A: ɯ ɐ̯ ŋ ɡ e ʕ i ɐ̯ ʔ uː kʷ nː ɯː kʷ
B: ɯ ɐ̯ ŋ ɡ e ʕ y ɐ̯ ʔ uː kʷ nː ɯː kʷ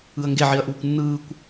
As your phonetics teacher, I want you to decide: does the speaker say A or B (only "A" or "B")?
A